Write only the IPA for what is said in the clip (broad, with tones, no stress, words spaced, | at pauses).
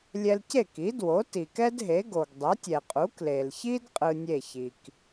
lʲɛ˧lce˥˩ki˩˥ dwo˩˥ti˩kɛ˥dɦe˩˥ ɡo˩ɡdˤɛ˩˥tʲɛ˩qʼu˩˥ kle˩lçi˥d qʼɯ˧nʲe˥˩çi˩k